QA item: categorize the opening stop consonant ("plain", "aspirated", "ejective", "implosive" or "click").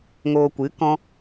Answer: plain